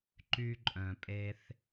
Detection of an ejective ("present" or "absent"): present